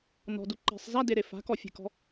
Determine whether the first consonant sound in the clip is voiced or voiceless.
voiced